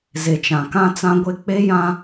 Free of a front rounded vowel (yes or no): yes